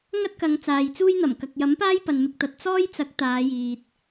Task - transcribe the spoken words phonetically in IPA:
ŋɐ˥t̚kɐ˨˧ŋ t͡saː˨jt͡suː˥jn̪ɐ˨˩m kɐ˨k̚ jɐ˨˥mpaː˥j pɐ˨nmɪ˧k̚t̪ɐ˨t̚ t͡sɔː˥jt͡sɐ˨˥k̚ t̪aː˨˧jiː˨t̚

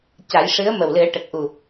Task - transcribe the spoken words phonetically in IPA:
ca˨˩˦jʂɨ˧˥ə̯ mə˨˩wlɨ˨˩˦ə̯ʈə˨˩k̚ ʔu˨˩

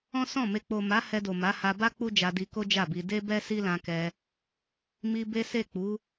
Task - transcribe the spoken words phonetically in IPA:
ɔ̃˦sɔ̃˦˨me˧ k͡po˨ma˨˦ hɛ˧do˨ma˨˦ha˧ ba˦ k͡pu˦d͡ʒa˧di˧ko˦ d͡ʒa˦˨bi˧ de˦bɛ˦ si˦lã˧kɛ˧ | mi˧be˦se˦˨ k͡pu˨˦

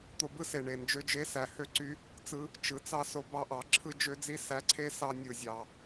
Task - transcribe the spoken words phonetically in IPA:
t̪o˧bɯ˦se˨ ɳe˨ nd͡ʒø˧d͡ʒe˧sæ˨ hø˦ǀy˦ | t͡sɯ˧ | t͡ʃɯ˨˦t͡sɑ˦so˧bɑ˦ ʔɑ˨˦ǁʰɯ˦ d͡ʒø˦d͡zi˦ sæ˨˦ǀʰe˧ sɑ˦ nʲɯ˨zʲɑ˨

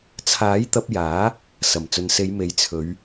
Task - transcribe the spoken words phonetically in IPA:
t͡sʰaː˨˥jt̪ɐ˧p̚jaː˨˥ | sɐ˨˩mt͡sɵ˨nse˨˧jme˨˥j t͡sʰɵ˨˧ɥ

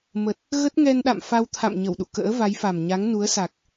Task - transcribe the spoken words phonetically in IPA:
mə˨˩t̚ | ɣə˦˥t̚ŋɛ˧nɗa̰˧˨m fa˧wt̪ʰa̰˧˨m ɲə˧˩wɗṵ˧˨kə̰ː˧˥ va˨˦jfa˨˩m ɲa˨˦ŋnu˨˦ə̯sa˨˩k̚

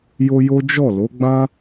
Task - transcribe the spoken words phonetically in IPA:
jo˦jo˦ d͡ʒɔ˦˨ lo˨˦ɡ͡bã˦

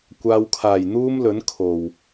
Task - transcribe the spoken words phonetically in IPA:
kʷaː˨wkʰaː˨˩j n̪uː˥mlɵ˨˥n kʰo˨˩w

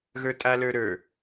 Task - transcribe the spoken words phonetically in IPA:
ɣə˞tʼalə˞ɾə˞

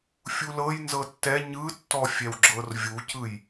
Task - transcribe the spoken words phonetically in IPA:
fʲulɤj nzɤtːɛ ɲɯtːɔfʲɛw ɡ͡ǁɤrvʲucɯj

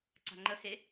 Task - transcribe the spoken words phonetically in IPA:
ǀa̤ŋ͡ǃəhe

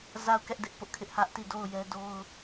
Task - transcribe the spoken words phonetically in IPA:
za˦˨ʊ̯kɛ˦ʔ dɪ˦ʔpʊ˦ʔkʰɪ˦ʔ hä˦ʔti˦˨do˦˨ʊ̯ jɛ˦ do˦ʊ̯

